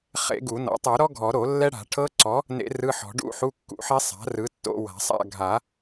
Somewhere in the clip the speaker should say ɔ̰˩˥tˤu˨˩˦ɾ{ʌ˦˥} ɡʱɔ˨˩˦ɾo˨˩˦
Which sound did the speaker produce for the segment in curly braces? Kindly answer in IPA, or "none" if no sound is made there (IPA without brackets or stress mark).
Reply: ɔ˦˥